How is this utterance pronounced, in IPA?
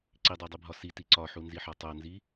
ǀ i dˤ æ dˤ i bʱ ɒ s i t i ǀ ɒ ħ u n z i ħ ɒ tˤ o n z i

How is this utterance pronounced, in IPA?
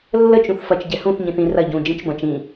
lː ə t͡ʃ ũ θ f ɐ t͡ʃ ɟ ɛ h ũ θ ɲ ĩ θ ĩ r ɐ ɟ ũ d͡ʒ ĩ t͡ʃ b ɐ̃ t͡ʃ ĩ

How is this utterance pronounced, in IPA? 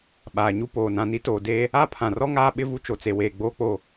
ɓ aː˨ ɲ u˦ p oː˨ n ã˨ n i˦ t oː˨ d eː˦ | a˦ pʰ ã˨ r ɔ˦ ŋ aː˦ ɓ ɪ˦ v u˦ t͡ʃ o˨ t͡s e˨ w eː˨ ɡ͡b oː˦ k͡p o˦˨

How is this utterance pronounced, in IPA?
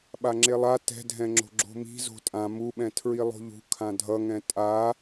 ɓ a ŋ͡ǁ e lˠ a t ɛ̤ dʱ ɛ̃ ŋ͡ǁ o̤ ɡ͡ǁ o̤ m i̤ z o̤ tʼ ã m u ɓ ɛ̃ tʰ ɹ i lˠ o̤ ʎ ṳ kʰ ã dʱ ʌ ŋ ɛ̃ tʼ a

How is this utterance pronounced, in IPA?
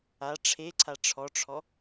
a ʈ͡ʂʰ e ǀʰ a ʈ͡ʂʰ ɔ ʈ͡ʂʰ ɔ

